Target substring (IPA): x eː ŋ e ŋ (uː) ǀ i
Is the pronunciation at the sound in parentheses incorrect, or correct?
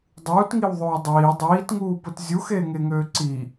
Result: incorrect: øː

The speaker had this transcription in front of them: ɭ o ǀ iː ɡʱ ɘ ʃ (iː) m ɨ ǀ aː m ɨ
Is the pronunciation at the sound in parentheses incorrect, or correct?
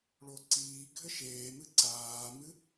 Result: incorrect: eː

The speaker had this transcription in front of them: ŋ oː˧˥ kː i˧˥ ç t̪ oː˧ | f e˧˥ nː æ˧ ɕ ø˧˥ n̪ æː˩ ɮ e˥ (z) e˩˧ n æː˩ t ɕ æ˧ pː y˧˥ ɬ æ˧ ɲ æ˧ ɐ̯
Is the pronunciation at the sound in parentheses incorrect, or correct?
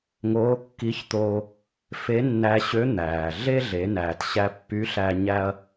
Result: incorrect: ɮ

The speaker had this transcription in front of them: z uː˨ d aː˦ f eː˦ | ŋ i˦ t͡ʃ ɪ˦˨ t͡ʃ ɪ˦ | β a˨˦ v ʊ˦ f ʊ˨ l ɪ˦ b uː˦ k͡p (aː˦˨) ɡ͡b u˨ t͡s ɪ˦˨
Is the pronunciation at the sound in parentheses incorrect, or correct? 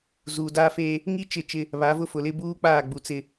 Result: correct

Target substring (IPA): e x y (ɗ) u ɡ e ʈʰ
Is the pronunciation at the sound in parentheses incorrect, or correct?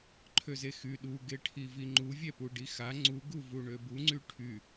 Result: correct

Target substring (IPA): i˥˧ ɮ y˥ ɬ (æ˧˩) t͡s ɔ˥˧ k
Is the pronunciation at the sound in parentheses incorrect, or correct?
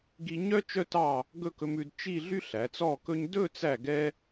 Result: incorrect: æ˩˧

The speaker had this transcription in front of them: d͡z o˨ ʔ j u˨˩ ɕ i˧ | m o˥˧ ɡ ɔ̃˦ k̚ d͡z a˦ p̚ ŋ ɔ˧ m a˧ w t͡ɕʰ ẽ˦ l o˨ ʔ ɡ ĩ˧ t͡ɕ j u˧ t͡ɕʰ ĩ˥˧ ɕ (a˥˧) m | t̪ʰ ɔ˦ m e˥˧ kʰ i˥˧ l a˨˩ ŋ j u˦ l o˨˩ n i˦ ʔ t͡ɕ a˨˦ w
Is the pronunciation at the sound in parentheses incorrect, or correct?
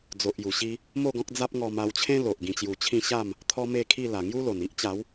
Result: correct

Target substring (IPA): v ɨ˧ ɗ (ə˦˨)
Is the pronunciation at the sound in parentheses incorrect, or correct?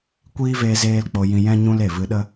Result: incorrect: ə˦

